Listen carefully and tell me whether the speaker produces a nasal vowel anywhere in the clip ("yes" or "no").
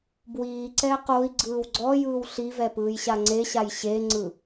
no